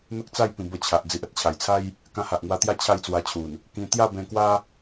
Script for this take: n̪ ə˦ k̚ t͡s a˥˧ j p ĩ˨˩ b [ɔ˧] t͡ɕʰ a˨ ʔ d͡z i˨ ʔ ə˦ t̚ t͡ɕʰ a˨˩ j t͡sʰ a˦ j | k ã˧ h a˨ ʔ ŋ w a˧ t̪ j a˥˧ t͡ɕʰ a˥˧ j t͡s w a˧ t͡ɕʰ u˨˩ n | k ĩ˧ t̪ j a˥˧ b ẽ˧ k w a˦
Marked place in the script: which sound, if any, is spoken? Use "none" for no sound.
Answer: ə˧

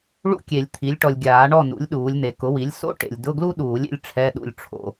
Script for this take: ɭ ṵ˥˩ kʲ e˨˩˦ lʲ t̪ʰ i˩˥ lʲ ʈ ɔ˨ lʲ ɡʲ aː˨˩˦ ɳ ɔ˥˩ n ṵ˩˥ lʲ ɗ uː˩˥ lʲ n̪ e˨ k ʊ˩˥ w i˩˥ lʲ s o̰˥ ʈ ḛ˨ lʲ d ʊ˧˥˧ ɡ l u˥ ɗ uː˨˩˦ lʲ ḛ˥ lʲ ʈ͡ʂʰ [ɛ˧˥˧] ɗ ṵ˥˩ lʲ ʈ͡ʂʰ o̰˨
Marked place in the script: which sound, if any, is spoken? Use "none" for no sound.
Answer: ɛ˧˥˧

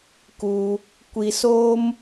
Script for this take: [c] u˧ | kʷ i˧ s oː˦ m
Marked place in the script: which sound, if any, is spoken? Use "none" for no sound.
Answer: k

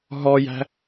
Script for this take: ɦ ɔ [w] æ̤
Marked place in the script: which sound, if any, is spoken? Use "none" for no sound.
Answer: j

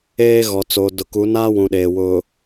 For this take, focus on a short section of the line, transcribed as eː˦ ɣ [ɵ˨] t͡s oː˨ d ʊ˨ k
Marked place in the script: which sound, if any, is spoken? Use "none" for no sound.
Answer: ɔ˨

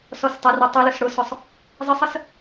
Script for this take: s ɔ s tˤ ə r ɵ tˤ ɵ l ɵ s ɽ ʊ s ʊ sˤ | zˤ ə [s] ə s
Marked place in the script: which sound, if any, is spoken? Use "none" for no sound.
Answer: sˤ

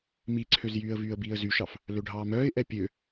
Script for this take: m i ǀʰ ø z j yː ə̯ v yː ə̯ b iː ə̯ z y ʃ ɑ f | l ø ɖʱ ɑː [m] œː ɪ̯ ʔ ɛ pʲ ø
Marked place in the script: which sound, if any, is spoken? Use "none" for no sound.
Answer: m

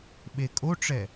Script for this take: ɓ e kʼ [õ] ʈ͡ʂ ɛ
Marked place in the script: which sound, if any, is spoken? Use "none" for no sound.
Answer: o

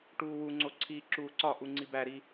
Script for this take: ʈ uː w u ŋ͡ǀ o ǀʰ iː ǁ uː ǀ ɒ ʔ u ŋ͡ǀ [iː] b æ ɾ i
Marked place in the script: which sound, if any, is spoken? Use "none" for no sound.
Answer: i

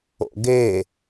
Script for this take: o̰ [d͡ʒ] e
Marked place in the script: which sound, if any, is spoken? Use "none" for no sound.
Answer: ɡ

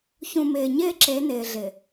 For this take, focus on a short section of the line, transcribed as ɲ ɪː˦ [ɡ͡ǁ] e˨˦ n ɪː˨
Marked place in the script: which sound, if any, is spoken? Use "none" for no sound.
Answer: ǁ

